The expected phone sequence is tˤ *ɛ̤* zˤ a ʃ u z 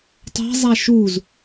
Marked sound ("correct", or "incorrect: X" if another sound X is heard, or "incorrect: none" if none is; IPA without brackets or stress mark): correct